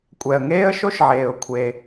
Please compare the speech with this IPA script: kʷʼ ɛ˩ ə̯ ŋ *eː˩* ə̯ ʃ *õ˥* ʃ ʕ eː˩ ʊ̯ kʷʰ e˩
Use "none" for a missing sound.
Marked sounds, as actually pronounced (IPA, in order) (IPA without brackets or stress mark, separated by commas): eː˥, o˥